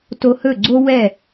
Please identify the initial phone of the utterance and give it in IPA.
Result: t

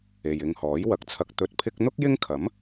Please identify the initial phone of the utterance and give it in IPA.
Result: e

